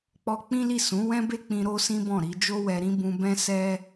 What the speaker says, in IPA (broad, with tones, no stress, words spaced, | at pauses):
k͡pɔ˦ k͡pĩ˦li˦˨ sũ˨˦ wɛ̃˦be˦k͡pĩ˧ ɾo˦sĩ˦bɔ̃˦˨ɾi˧ d͡ʒo˦wɛ˧ɾĩ˦ bũ˧ bɛ̃˦sɛ˦